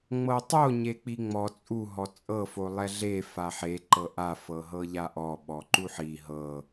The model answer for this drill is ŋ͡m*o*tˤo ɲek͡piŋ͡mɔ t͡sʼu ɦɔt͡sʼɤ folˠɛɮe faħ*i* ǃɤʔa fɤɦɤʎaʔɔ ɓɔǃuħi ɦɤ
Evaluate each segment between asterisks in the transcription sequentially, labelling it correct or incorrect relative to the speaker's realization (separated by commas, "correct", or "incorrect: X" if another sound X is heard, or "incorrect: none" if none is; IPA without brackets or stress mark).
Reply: incorrect: ɤ, incorrect: e